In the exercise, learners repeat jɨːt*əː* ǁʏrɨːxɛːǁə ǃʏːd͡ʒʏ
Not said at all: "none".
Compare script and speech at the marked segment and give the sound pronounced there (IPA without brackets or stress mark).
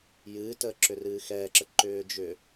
əː